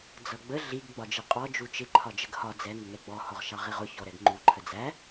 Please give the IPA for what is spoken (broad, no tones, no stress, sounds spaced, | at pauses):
d͡z ʌ ɡ͡b ə ɮ i ɡ ɡ͡b ɒ d͡ʒ i qʼ ɔ d͡ʒ u t͡ʃ ɪ ǃʰ ɒ d͡ʒ ə ɡ h ɒ d͡z ɛ ŋ ə ŋ ɛ ɡ͡b ɔ h ɔ ʁ ʃ ɑ ʁ i ʁ ʊ ç ɔ ɾ ɛ ɡ ŋ͡ǃ u ǃʰ ə d͡z æ